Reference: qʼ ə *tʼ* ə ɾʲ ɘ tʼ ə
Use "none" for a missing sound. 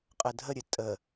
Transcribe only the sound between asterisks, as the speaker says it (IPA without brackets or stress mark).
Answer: dʱ